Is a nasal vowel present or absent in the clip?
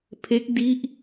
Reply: absent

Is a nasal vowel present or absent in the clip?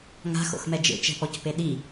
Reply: absent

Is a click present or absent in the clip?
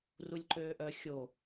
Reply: present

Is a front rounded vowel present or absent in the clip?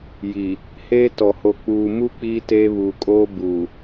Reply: absent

